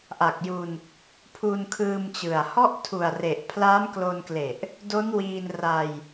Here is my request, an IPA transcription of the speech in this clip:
ʔ a˨˩ k̚ j u˧ n | pʰ u˧ n kʰ ɯː˧ m t͡ɕ ɯ˨˩ a̯ h ɔ˦˥ ʔ tʰ u˨˩ a̯ r e˨˩ ʔ pʰ l aː˦˥ m k l o˧ n k l e˨˩ ʔ | d o˦˥ n w iː˧ n r a˧ j

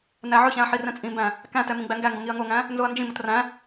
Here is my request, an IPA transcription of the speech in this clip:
n æ ʕ ɵ ç æ̃ ɐ̯ ħ i r ɛ̃ t͡sʼ ĩ m b æ̃ | k æ̃ t ɛ m ĩ ɡ͡b æ ŋ ɡ æ ŋ ɡ õ ŋ i ɐ̯ ŋ o ŋ æ̃ | n z o ɐ̯ n d͡ʒ ĩ m o t r æ̃

